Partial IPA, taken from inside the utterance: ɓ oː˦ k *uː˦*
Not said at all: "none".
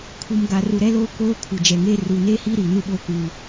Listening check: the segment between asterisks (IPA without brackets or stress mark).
uː˦